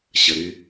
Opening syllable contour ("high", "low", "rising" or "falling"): low